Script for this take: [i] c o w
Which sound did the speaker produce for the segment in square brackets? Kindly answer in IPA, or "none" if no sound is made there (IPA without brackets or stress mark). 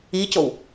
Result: i